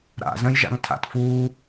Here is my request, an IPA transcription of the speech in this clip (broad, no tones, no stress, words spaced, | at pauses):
ɾa̰zə̃jʒa̰ŋ tʰa̰tfuː